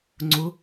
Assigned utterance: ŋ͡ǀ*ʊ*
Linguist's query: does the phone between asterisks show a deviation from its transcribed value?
no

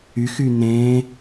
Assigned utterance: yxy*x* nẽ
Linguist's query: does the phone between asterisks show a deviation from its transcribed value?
yes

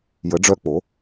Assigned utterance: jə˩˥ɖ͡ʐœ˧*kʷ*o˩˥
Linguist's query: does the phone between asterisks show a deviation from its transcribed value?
yes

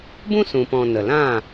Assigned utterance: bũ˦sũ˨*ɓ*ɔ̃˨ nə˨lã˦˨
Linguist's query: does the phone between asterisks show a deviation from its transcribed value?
yes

